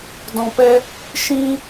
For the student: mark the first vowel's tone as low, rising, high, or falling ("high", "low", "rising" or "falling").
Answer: low